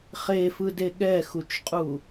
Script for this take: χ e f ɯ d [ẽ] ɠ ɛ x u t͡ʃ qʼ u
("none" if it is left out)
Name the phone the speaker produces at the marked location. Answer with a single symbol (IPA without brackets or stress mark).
e